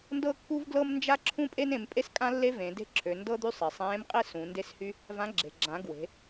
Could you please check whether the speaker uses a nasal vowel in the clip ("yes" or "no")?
yes